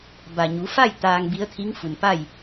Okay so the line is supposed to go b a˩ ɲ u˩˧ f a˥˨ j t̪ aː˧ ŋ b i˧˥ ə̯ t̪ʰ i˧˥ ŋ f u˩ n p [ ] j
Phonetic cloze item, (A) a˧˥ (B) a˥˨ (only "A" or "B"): B